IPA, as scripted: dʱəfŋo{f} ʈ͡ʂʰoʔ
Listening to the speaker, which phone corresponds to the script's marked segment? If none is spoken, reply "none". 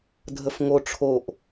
none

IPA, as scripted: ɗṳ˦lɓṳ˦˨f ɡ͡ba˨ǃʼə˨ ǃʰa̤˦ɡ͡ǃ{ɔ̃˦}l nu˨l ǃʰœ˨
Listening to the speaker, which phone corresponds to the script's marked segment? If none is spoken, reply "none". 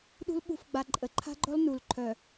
ɔ˦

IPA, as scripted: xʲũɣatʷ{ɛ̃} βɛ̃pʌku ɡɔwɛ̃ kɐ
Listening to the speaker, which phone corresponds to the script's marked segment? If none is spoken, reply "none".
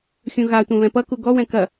ɛ̃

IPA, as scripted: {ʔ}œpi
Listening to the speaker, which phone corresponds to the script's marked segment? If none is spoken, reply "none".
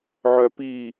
ʕ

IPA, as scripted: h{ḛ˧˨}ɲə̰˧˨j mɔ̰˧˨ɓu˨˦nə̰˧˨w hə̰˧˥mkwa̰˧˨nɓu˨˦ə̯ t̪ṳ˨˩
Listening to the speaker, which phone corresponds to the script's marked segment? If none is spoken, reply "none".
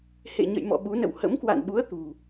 ḛ˧˨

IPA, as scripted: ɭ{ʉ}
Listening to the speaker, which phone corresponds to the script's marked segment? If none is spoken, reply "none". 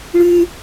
ʉ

